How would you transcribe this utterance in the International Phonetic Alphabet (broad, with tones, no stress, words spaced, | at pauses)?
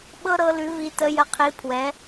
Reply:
ɓɤ˥ɾɤ˧˥lʉ˧˥vi˧˥ tə˧˥jə˧˥qʰi˧˥ pʰwɛ˧˥